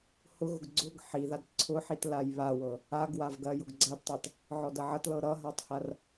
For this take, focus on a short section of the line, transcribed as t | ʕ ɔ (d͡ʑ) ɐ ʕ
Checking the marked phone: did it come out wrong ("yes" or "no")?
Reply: yes